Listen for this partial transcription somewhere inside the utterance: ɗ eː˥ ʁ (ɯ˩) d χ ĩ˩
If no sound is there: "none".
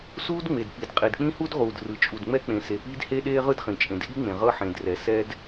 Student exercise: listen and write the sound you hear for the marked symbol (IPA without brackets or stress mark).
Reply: ɯ˥